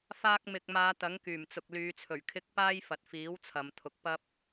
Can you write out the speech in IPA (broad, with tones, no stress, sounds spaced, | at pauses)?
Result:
f aː˧ k̚ m ɪ˨ k̚ m aː˨˧ t̪ ɐ˨˥ ŋ k yː˨˩ m t͡s ʊ˨ k̚ l yː˨˧ t͡sʰ ɵ˨˩ ɥ kʰ ɪ˧ k̚ p aː˥ j f ɐ˨ t̚ f iː˨˥ w t͡sʰ ɐ˨˧ m t̪ʰ ʊ˨˥ k̚ p ɐ˥ p̚